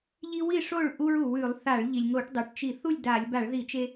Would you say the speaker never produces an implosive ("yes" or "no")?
yes